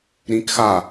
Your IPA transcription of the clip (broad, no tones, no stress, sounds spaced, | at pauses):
ɾ ĩ k x a